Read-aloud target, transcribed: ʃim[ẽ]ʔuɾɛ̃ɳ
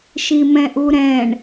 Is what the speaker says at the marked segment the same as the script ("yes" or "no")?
no